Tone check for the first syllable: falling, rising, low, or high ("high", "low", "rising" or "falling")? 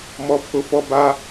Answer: high